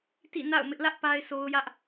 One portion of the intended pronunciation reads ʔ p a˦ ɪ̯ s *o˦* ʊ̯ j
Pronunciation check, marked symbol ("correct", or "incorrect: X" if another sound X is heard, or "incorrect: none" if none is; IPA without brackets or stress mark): correct